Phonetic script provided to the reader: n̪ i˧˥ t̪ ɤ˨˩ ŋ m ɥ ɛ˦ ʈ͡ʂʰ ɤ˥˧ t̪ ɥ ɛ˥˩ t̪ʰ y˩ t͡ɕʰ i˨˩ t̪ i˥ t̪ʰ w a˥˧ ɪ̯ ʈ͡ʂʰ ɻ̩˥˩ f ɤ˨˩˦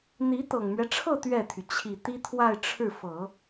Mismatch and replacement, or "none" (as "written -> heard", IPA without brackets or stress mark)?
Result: none